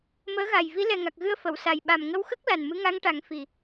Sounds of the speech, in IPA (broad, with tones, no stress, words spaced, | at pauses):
məː˧˥ɣa˨˩j vi˧˥lɛ˨˩ŋa˨˩k̚ɣɨ˧ə̯ fə˨˩˨wsa˨˩j ɓa˨˩mŋə˧wxə˦˥k̚ la˨˩nmɨ˧˥ŋa˧˥ŋʈa˨˩˦ŋ fi˨˩